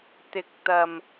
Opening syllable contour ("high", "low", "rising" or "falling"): rising